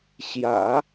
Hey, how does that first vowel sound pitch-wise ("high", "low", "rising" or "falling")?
low